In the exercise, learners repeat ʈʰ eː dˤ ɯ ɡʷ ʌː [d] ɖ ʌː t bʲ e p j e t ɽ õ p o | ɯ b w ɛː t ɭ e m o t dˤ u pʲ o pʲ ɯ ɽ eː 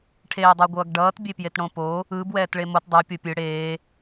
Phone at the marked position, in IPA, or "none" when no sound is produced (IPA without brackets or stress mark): ɡ